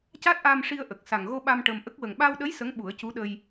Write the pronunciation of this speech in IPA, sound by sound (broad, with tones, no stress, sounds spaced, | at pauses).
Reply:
c a˦˥ t̚ ʔ aː˧ m ʂ i˧ ə̯ ʔ ə˨˩ k̚ s a˨˩ ŋ ɣ o˧ ɓ a˧ m ʈ ə˧ m ʔ ə˦˥ k̚ w ə˨˩ ŋ ɓ a˧ w ɗ ə˧˥ j s ə˧˥ ŋ ɓ u˨˩˦ ə̯ c u˧˥ ɗ ə˧ j